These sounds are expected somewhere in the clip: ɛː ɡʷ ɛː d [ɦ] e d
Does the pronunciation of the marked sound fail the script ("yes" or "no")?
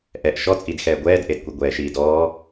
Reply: yes